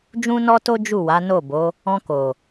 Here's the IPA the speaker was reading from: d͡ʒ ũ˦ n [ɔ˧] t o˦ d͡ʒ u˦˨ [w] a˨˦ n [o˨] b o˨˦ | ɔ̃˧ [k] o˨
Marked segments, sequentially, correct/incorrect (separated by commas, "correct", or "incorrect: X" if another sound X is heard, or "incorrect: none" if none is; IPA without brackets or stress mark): incorrect: ɔ˦, correct, incorrect: o˦˨, correct